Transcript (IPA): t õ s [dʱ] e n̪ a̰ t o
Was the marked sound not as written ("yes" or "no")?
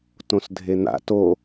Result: no